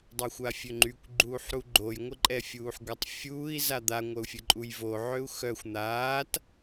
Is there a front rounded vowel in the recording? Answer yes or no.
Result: yes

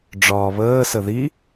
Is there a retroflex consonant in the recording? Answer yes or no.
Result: yes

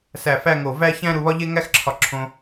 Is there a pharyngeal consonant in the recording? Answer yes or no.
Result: no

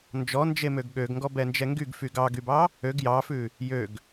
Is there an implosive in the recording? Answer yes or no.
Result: yes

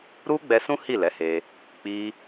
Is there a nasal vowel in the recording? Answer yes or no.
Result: yes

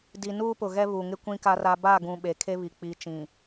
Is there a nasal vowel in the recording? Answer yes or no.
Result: yes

